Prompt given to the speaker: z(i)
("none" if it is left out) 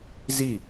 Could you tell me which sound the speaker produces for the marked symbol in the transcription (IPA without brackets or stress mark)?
i